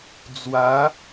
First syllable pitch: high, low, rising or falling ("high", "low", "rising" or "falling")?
rising